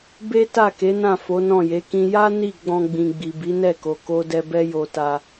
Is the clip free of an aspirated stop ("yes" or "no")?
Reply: yes